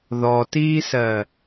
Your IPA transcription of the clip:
ð ɔ t iː s ɜ

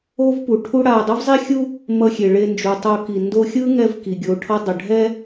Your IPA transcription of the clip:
o˥ v p u˩ ʈʰ u˥ ɽ a˧ dˤ u˥ v zˤ i˥ xʲ u˥ | m ʌ˧ xʲ e˩ ɭ e˧ n d͡ʒ u˩ tˤ o˧ k i˩ n d o˧ xʲ ɯ˥ ŋ ɛ˧ v k i˩ ɡʲ o˩ ʈʰ ʌ˧ dˤ ʌ˩ ɖʱ ɛ˥

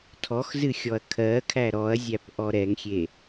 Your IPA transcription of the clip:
tʰ ɔ x z ɨ xʲ ɔ ɐ̯ kʰ ɜ kʰ æ ɾ ɔ ɐ̯ zʲ æ p ʔ ɔ ɾ ɛ ŋ xʲ e

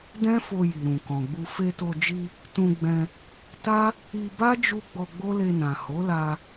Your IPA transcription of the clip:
d ɛ̃˦ f o˧ j i˨ ɾ ũ˨ k ɔ̃˨ ɡ͡b u˧ f e˧ t o˧ d͡ʒ i˧ | t ũ˧ ɡ͡b ɛ̃˧ | t a˦ | i˧ b a˦ d͡ʒ u˧ ɡ͡b ɔ˧ ɡ͡b o˦ l e˧ n ã˨ h o˨˦ l a˧

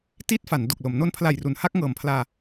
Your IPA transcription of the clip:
t iː˦˥ t̚ f a˩˦ n d o˨˩ k̚ l o˩˦ m n o˧ n pʰ l a˨˩ j r u˩˦ n h a˥˩ k̚ ŋ ɤː˨˩ m pʰ l aː˧

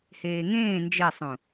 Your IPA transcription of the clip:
h eː ŋ ẽː n d͡ʒ e sˤ ũ

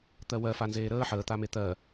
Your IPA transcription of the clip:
t̪ ɜ w ɜ f a n z eː ɾ əː ħ əː t̪ a m e t̪ ɜ

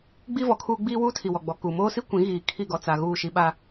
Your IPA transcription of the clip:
ɡ͡b i˦ v ɔ˨ kʰ uː˦ ɡ͡b iː˦ w uː˦ tʰ i˨ w ɔ˨ ɡ͡b ɔ˨ k u˨ m oː˦ s i˦ kʷ ĩ˨˦ ɣ iː˨ kʰ i˦˨ ɡ ɔ˨ t͡s a˨ ɣ uː˦˨ ʃ i˦ ɓ a˦

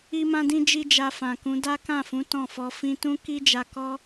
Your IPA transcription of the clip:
i˦ m ã˦ d ĩ˦ d͡ʒ i˦ d͡ʒ a˧ f ã˨ k ũ˨˦ d a˦ k ã˦˨ f ũ˨˦ t ɔ̃˦˨ f ɔ˧ f ĩ˦ t ũ˦ k i˦ d͡ʒ a˧ k ɔ˦

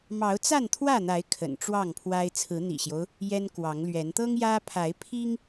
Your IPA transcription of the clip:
m ɑ˨˦ ʊ̯ t͡s a˥˨ n t̪ʰ w ä˥˨ n̪ a˨˦ ɪ̯ kʰ ə̰˨˩ n ʈ͡ʂ w ɑ˥˨ ŋ pʰ w a˦ ɪ̯ t͡sʰ ɹ̩˨˦ n̪ ḭ˨˩ ɕ j o˦ ʊ̯ | j ɛ˦ n k w ɑ˨˦ ŋ l ɥ ɛ˨˦ n t̪ ɤ˦ ŋ j ä˦ pʰ a˨˦ ɪ̯ pʰ i˦ ŋ

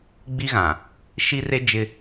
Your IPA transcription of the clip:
ɡ͡b i˦ ɣ ã˨ | ʃ i˦ r e˦ d͡ʒ ɪ˦

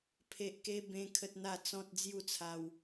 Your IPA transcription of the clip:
pʰ e˦ ʔ k e˦ b ẽ˦ kʰ ə˦ t̚ n̪ a˥˧ t͡s ɔ̃˦ t̚ d͡z j u˥˧ t͡sʰ a˧ w

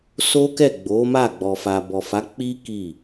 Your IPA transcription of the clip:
s o˦ k ɛ˦˨ ɡ͡b o˨˦ m a˦˨ ɡ͡b ɔ˨ f a˨ b ɔ˨ f a˨˦ k͡p i˦ k i˦˨

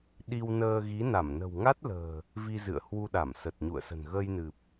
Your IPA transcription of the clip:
ɗ i˧ w n əː˧ ɣ i˨˦ n a˧˩ m n ə̤˨˩ w ŋ a˦˥ t̚ l ə̤ː˨˩ | v i˧ z ɨ̰˧˨ ə̯ h w u˧ ɗ a˧˩ m s ə˨˩ t̚ ɲ ṵ˧˨ ə̯ s ə̤˨˩ n ɣ əː˧ j n ɨ˨˩ p̚

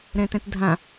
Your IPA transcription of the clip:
ɾ ɛ̃ t ɛ̃ t dʱ ã

